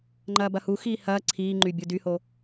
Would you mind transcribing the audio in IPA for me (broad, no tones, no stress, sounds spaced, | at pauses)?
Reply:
ŋ͡ǃ ɐː b ɐ h u x iː h ɐː ǀʰ iː ŋ͡ǃ y bʲ u d y h o